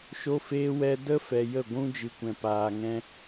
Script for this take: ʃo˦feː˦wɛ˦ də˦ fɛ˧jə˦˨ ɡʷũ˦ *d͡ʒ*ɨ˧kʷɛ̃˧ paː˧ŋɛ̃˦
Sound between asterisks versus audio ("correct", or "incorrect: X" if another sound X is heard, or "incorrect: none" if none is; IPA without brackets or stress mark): correct